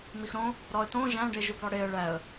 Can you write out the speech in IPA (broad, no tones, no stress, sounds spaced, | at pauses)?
m i x ɾ õ | ɾ ɒ ə̯ t õ ʒ æ̃ ɖ e ʒ u ɡ ɾ ɒ ɽ e ə̯ ɭ æ ə̯